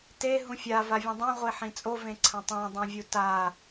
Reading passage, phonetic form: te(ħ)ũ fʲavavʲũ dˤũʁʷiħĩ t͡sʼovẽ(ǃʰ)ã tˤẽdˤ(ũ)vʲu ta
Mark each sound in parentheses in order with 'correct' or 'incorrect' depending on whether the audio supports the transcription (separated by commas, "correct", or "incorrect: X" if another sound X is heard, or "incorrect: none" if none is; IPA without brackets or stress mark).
incorrect: ɦ, incorrect: ǀʰ, correct